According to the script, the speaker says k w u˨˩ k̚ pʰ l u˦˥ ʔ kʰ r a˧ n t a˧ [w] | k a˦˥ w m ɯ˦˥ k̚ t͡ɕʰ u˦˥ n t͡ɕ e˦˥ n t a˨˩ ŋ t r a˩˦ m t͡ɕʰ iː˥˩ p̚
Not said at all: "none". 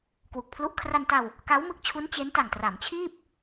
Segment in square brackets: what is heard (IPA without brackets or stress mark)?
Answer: w